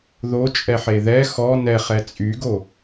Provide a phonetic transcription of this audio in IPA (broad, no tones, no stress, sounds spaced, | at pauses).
ð o t͡ʃʼ ɛ ħ e ð ɛ x ɔ n ɛ χ ɛ t͡sʼ y ɡ o